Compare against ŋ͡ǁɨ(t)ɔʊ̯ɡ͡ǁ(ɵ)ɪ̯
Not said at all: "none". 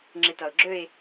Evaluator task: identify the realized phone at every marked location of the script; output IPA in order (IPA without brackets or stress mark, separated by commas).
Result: t, ɵ